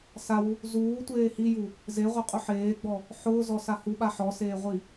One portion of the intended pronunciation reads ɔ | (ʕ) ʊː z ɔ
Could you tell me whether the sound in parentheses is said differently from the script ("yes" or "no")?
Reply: yes